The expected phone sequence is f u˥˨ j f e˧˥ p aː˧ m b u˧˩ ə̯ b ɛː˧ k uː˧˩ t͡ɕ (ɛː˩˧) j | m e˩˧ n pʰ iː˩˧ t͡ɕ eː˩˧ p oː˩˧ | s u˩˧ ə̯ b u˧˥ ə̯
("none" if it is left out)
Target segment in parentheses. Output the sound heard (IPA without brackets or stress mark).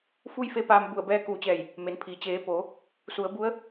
ɛː˧˩